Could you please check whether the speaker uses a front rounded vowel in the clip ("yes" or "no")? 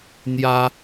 no